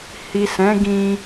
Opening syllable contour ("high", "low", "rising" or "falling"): low